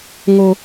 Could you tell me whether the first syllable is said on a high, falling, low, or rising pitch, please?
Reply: high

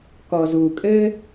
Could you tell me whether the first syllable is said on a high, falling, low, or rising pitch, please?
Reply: low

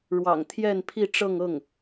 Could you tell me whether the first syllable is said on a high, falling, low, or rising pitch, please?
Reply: low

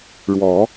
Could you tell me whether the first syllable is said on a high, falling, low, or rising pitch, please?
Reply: rising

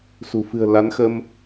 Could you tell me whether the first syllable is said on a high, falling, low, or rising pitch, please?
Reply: low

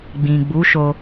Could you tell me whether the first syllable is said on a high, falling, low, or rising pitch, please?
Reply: low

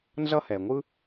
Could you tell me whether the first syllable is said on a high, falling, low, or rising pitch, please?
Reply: high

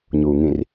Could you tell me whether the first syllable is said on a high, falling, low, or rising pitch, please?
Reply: low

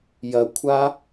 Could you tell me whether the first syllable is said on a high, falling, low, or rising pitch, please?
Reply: low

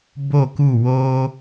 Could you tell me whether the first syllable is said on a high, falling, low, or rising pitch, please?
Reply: falling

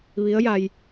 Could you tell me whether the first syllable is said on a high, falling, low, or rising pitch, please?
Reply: rising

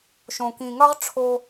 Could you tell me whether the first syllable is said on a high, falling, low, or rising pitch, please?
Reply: low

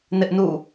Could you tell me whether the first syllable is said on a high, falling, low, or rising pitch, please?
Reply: high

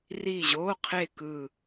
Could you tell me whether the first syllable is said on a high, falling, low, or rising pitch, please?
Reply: falling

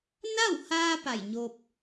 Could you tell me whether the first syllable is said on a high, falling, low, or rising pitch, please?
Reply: falling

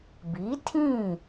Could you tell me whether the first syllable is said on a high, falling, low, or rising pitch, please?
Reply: rising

